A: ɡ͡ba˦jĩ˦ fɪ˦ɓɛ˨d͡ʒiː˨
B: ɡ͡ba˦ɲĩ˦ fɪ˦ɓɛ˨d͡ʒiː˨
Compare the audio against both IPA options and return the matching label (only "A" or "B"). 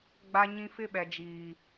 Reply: B